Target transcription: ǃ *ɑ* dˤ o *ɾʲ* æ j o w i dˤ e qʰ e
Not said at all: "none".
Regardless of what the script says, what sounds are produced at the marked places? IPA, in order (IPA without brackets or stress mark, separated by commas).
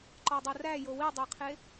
ɒ, r